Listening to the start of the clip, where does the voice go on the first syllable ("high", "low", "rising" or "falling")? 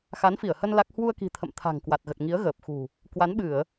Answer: rising